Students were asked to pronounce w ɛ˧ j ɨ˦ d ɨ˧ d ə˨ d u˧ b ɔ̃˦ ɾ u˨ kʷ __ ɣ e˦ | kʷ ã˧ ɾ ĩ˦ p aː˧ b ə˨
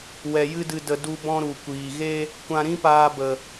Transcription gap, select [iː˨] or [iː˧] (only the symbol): iː˨